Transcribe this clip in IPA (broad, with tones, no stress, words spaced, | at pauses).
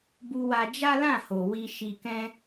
bu˧wa˧ d͡ʒa˦lã˦˨ho˨ wi˧ ʃi˧kɛ̃˦